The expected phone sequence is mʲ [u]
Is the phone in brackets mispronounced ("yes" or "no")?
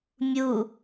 no